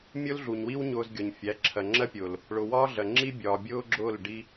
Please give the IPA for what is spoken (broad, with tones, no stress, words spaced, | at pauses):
mʲʊː˦lɮu˨ɲwi˦w ɲʊː˧z ɡʲɔ˨ɲfʲæ˨˦ǁʰɜ˨ ŋ͡ǁɜ˦pʲʊː˨l | ɭʊ˨ wɒː˦ɮɜ˨ŋ͡ǁi˦ bʲɒː˨bʲʊː˦ɡ͡ǁʊː˦˨l ɖi˦